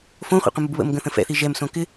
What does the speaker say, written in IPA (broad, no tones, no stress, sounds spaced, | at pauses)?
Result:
f õ χʷ ɛ̰ qʷ ə̃ m u b β ə̰ m ɡ ə̃ θ ə̃ f ɛ̰ θ i ʒ ɛ m s õ k ɪ